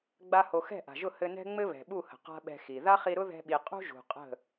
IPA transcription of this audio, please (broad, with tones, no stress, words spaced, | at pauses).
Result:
ɡ͡ba˦ho˧ xɛ̤˦˨ʔa̤˨ʒʊ˦˨ hɘ˧nɛ̤˦ ŋ͡mɘ˦βɛ̤˨ɓu˦˨hə̤˨ qa̤˦ɓɛ̤˧xi˨ ða˦χi˧ɾʊ˦ ðɛ̤˦ɓi˧ qʼṳ˦ʒṳ˨ qʼə̤˦˨